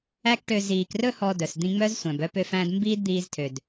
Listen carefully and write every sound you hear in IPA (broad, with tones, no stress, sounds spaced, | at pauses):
æ˦ k ʈ ø˧ z iː˨ k r ɵ˦ h ɔ˧ d œ˨ s d̪ ĩ˧ ŋ͡m œ˦ z sʷ æ̃˨ b œ˦ p ø˦ f æ̃ː˦ d m b iː˦ d d̪ iː˧ z tʰ ø˨ d